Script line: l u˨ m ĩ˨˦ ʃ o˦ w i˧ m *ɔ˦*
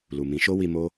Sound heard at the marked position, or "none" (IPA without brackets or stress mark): o˦